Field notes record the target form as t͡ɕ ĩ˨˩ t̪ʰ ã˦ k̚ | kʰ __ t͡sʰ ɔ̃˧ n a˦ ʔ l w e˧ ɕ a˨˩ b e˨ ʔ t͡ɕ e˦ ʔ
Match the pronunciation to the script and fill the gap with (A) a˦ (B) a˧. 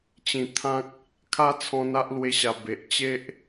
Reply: A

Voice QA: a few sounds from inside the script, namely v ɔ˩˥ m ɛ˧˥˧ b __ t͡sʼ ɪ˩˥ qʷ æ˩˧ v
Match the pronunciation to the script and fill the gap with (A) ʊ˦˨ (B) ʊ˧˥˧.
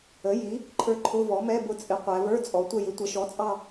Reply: A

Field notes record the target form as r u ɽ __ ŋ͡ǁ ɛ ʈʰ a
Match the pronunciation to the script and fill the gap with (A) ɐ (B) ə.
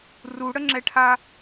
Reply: B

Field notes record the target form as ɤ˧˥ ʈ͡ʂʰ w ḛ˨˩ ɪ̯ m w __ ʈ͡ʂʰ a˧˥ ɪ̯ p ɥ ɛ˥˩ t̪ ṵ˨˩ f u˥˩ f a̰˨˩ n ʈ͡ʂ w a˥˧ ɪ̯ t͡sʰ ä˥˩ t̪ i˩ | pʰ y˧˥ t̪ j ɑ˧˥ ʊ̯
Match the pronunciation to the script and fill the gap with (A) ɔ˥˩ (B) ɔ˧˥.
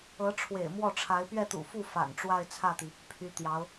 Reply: A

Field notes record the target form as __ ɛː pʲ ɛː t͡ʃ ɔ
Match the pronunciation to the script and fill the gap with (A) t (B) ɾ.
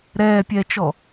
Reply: B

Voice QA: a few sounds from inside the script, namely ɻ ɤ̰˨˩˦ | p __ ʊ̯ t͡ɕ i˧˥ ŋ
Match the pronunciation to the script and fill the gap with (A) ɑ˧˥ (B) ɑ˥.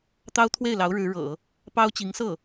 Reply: B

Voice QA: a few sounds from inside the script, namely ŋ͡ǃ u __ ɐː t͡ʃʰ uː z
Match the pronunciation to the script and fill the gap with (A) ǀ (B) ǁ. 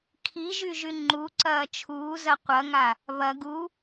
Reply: A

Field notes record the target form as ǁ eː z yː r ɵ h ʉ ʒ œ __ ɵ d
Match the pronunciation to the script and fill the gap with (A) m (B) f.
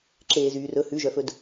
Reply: B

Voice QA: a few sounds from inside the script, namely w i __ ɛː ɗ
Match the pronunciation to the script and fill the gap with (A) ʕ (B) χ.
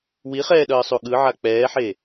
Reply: B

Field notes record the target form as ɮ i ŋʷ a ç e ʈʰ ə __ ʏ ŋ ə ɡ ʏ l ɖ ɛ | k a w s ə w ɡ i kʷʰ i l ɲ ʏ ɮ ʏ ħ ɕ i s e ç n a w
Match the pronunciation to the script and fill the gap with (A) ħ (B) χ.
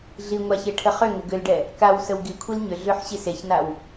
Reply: B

